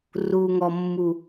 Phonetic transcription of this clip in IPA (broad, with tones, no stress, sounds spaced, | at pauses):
r u˨ ŋ ɔ˨ mː u˨